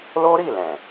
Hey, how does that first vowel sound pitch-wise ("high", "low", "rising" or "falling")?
high